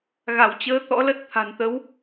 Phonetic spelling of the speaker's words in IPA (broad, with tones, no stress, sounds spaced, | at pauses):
ɣ a˧˩ w t͡ɕ əː˨˦ t̪ ɔ̰˧˥ l ə˦˥ t̚ t̪ʰ a̤˨˩ n t̪ ə˨˦ w